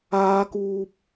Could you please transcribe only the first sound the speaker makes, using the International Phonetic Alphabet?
aː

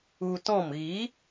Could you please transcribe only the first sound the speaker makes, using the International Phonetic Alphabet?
u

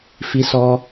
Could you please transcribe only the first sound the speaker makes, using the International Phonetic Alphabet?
f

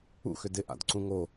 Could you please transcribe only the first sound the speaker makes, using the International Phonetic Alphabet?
ṵ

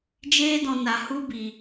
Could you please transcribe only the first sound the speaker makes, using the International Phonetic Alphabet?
d͡ʒ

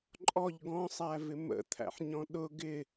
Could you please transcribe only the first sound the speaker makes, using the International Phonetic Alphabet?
ǃʼ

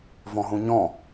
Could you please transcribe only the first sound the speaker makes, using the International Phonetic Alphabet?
v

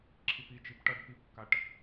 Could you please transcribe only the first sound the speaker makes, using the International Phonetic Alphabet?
ǁʰ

